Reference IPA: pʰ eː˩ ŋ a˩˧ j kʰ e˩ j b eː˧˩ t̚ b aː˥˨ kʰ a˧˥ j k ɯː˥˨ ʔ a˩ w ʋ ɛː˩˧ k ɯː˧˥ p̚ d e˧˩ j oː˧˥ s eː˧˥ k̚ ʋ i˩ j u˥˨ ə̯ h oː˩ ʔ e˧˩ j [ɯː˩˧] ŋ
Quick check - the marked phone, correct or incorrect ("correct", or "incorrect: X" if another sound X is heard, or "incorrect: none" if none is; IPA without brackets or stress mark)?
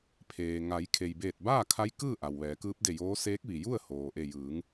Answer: correct